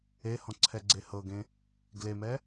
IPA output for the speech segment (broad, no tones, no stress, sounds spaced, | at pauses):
e h ɔ̃ ǀʰ ɛ ɡ͡ǀ e h ɤ ɡ ẽ | ɡ l e m ɛ